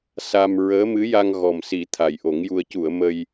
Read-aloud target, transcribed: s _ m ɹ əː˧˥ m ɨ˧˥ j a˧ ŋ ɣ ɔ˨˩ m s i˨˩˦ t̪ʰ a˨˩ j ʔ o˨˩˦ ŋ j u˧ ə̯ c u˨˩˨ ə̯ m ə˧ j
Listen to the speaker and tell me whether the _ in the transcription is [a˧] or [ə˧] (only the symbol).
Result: a˧